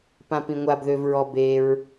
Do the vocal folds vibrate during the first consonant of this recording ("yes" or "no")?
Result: no